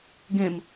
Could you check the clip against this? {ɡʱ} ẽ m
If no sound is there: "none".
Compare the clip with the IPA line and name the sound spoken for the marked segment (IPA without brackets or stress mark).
ɡ